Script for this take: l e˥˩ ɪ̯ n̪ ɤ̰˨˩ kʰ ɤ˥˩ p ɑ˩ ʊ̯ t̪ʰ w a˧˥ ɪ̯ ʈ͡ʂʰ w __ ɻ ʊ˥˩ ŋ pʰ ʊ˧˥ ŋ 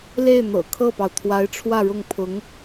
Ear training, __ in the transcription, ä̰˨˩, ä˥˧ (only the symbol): ä˥˧